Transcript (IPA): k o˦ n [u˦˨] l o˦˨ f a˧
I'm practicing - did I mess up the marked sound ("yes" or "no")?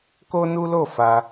yes